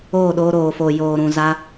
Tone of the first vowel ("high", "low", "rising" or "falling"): falling